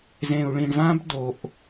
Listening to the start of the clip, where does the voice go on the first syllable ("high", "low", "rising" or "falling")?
low